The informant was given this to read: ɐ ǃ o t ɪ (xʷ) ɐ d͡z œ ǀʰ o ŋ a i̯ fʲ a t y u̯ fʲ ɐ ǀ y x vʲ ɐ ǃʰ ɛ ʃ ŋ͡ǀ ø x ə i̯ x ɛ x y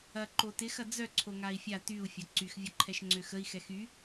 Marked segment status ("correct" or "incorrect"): incorrect